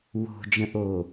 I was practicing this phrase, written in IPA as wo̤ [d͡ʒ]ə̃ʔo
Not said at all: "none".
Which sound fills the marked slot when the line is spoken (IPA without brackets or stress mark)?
d͡ʒ